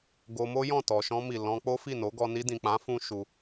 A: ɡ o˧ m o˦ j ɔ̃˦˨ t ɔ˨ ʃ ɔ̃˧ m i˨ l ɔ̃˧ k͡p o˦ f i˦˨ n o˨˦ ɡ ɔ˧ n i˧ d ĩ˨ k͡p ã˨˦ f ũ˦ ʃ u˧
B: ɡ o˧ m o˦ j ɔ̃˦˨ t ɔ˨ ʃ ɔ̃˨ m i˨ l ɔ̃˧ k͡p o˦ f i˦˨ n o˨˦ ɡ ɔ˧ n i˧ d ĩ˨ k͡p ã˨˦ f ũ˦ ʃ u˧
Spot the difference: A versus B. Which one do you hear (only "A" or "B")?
A